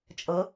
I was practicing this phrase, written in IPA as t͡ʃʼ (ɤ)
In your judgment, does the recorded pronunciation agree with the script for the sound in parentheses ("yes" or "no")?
yes